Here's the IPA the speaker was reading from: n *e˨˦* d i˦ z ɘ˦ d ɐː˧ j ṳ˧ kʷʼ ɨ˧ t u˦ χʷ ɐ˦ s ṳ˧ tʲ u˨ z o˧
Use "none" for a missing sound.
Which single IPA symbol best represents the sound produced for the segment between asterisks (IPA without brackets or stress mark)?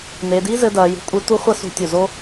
e˧